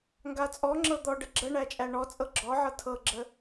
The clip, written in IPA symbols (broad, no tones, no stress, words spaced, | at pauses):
ŋɡat͡sʼɔŋ͡ǁɤ d̪ɔɖə ɡ͡ǁəɳæ t͡ʃʼæɳɔt͡sʼɤ ɡ͡ǁɔʕɤ tʰɤɡ͡ǁə